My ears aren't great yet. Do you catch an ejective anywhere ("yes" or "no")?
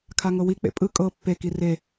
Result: yes